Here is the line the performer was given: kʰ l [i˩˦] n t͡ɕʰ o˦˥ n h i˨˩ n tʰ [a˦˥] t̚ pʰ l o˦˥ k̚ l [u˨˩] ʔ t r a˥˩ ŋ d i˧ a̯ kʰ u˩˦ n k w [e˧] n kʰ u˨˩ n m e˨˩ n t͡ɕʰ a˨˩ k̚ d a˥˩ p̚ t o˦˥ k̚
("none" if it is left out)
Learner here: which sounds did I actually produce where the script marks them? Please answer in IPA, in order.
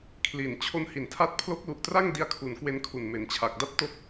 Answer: i˨˩, a˦˥, u˨˩, e˧

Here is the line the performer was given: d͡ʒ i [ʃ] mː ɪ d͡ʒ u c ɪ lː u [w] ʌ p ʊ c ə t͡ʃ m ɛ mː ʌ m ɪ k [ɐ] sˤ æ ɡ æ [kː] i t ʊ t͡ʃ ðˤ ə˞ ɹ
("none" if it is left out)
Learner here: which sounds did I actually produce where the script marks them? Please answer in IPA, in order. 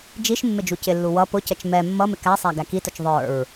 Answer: ʃ, w, æ, k

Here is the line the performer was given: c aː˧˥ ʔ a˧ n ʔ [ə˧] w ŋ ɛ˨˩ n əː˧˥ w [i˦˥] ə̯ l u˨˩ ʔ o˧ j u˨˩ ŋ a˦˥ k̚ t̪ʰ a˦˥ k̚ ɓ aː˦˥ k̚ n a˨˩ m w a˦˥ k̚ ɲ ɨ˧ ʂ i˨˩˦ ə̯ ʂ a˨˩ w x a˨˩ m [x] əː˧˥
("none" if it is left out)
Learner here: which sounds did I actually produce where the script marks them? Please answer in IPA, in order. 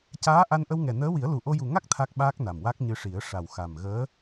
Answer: ə˧, i˨˩˦, ɣ

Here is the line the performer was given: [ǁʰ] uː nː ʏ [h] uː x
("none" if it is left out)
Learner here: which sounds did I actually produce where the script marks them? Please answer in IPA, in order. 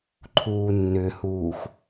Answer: ǃʰ, h

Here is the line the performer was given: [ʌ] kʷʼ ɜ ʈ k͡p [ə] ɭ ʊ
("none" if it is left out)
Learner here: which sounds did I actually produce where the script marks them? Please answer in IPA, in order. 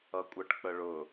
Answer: ʌ, ə

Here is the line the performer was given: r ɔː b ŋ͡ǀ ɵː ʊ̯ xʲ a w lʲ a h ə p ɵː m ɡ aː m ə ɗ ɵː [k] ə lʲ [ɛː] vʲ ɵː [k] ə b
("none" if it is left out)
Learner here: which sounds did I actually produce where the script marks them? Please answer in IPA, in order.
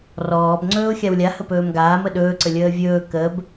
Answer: ǀ, əː, k

